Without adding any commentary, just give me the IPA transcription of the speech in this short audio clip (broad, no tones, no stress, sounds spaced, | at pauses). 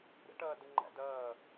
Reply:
ɾ ə̰ ʈ ʌː d ə ŋ͡ǃ æ̰ d ʌː